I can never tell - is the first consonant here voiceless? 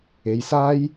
no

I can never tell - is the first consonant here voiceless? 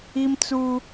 no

